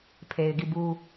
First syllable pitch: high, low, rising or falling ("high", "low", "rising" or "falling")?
low